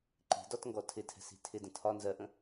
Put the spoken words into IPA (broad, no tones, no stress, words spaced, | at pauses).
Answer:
ǃi̤dɒtŋɡɔ tʰɪtʰɛ̤si̤ tʰɪdə̃ tʰɒ nzɜʔə̃